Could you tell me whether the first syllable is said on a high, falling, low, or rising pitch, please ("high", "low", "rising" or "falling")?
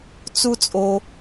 high